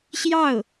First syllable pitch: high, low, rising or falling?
falling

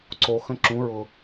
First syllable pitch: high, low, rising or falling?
low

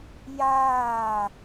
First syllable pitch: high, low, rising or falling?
falling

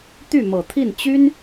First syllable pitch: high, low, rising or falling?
falling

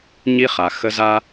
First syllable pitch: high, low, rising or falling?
high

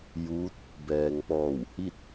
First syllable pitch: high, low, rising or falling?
rising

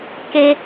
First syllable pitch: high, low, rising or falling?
high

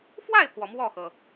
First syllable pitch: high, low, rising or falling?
falling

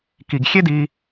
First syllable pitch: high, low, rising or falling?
low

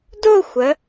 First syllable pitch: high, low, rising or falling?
falling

